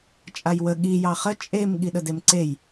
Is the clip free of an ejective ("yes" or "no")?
no